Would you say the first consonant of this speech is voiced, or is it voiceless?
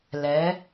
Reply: voiced